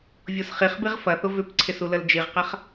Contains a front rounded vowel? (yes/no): yes